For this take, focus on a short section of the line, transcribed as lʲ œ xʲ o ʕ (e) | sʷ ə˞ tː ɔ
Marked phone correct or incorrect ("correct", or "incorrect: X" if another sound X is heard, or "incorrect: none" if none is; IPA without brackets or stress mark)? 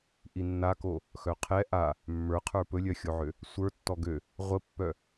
incorrect: ø